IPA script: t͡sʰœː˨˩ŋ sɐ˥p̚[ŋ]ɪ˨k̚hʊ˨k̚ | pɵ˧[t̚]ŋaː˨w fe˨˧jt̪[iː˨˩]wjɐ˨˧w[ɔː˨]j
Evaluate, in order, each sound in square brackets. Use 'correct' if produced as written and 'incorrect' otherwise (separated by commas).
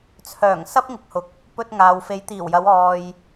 correct, correct, correct, correct